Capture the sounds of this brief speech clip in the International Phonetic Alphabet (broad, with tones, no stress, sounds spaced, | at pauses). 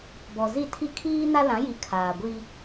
b ɔ˨ z i˦˨ tʰ i˦ kʰ iː˦ n a˦ l ã˨˦ j i˨ kʰ aː˨ ɡʷ i˦